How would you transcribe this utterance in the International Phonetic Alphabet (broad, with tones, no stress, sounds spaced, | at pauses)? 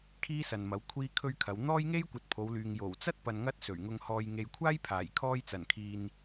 kʰ iː˥ s ɐ˨ n m ɐ˨˥ w kʷʰ iː˥ kʰ ɵ˥ ɥ kʰ ɐ˨˧ w n̪ ɔː˥ j ŋ e˥ j kʷ ɐ˨ t̚ pʰ o˨˧ w l yː˨ ŋ j o˨˩ w t͡s ɐ˥ t̚ p ɐ˨ n ŋ ɐ˥ t̚ s ɵ˨˩ ɥ ŋ ʊ˧ ŋ h ɔː˨ j ŋ e˨ j kʷʰ aː˥ j pʰ aː˨˩ j kʰ ɔː˧ j t͡s ɐ˨˩ n kʰ iː˨ n